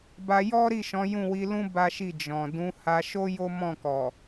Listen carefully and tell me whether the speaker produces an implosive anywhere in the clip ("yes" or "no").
no